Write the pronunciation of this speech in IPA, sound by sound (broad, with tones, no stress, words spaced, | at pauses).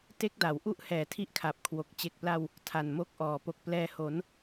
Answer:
te˦˥k̚da˩˦w ʔu˥˩ʔhɛː˨˩tʰi˦˥ʔkʰa˨˩p̚ kʰwo˨˩k̚ t͡ɕe˨˩k̚pla˧w | tʰa˨˩nmo˦˥k̚ʔɔː˨˩ po˨˩k̚plɛː˧ho˩˦n